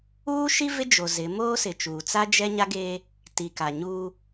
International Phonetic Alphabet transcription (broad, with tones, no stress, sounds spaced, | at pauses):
uː˦ ʃ i˦ v ɪ˦ d͡ʒ o˨ z ɪ˨˦ m oː˦ s ɪ˨ t͡ʃ uː˨ t͡s a˦ d͡ʒ ɛ˦ ɲ a˦ ɡ eː˦ | t i˨ k a˨ ɲ uː˦